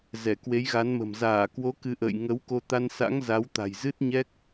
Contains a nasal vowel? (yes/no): no